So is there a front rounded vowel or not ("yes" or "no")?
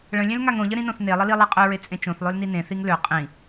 yes